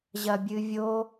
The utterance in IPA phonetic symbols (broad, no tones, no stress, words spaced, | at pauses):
ʑɐbʲɨvʲo